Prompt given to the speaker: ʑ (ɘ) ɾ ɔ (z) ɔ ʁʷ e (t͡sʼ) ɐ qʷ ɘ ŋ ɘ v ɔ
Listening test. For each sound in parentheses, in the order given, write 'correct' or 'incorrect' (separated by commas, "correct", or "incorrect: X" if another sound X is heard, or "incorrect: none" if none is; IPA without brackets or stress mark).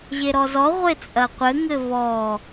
incorrect: e, correct, correct